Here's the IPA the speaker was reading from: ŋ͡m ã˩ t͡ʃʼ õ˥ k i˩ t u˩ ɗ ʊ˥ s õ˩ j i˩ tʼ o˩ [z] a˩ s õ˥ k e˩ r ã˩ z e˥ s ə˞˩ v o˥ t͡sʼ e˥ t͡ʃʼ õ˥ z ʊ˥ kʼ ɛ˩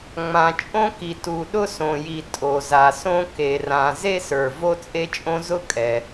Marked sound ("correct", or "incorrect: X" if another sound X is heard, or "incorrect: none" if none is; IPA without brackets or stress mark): correct